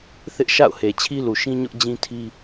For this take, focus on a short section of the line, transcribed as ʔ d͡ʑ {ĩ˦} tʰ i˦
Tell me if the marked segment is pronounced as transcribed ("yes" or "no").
yes